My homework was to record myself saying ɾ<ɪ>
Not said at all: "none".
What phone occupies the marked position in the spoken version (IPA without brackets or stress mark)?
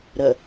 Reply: ə